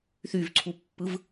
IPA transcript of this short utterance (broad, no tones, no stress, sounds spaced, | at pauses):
θ y v ǀʰ u pː ɯ v